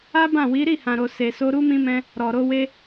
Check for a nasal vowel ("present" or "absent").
present